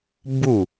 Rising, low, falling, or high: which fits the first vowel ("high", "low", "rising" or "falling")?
falling